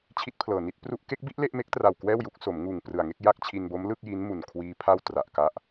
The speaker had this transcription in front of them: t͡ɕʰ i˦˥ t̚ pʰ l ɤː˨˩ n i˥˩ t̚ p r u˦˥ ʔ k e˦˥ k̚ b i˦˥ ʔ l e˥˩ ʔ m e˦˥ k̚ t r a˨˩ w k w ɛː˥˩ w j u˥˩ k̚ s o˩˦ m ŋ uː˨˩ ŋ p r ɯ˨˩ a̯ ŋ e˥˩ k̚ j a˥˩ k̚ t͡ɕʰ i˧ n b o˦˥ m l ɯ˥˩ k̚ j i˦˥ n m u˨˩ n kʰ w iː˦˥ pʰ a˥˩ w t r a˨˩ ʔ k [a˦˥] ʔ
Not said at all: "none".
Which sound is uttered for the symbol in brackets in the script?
a˦˥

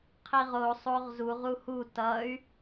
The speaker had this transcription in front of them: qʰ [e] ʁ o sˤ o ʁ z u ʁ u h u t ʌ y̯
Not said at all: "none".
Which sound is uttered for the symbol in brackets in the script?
i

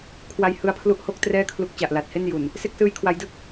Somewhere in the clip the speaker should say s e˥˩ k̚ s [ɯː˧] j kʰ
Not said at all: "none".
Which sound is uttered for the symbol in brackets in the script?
ɯː˦˥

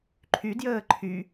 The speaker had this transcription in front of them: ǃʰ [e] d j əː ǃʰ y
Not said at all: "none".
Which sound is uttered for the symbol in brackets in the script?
y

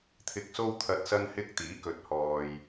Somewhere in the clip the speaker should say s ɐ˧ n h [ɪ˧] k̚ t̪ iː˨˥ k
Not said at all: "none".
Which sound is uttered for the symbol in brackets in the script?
ɪ˧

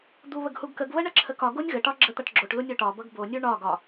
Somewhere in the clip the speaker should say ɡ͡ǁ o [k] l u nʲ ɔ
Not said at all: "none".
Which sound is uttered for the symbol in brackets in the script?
ʈ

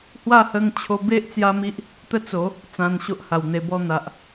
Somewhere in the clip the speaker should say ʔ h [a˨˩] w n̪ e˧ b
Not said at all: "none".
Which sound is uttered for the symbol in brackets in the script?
a˨˩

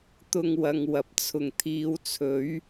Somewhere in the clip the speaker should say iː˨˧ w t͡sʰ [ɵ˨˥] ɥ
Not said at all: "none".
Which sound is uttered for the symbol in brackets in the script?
ɵ˨˥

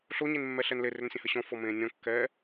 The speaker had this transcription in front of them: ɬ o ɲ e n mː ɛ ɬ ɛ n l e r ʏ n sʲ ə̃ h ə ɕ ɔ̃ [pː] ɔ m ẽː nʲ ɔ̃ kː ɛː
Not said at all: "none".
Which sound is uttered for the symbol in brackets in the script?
f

